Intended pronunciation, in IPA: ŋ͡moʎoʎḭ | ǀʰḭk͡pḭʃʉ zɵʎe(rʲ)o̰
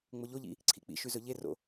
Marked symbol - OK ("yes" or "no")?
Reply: no